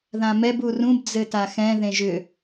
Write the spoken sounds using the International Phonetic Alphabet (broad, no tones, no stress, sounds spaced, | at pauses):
ð ã m ɛ b u r ũ b d͡z ɘ t a x ɛ̃ ð ẽ ʒ ʏ